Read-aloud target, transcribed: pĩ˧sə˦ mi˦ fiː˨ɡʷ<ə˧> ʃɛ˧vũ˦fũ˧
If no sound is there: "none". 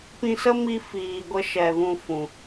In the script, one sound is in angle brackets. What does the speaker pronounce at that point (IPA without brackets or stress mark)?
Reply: ə˧